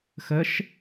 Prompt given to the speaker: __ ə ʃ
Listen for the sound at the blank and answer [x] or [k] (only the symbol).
x